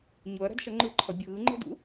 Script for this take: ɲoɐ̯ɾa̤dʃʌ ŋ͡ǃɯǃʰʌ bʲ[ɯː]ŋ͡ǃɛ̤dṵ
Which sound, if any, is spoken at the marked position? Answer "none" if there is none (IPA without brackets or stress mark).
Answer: ɯː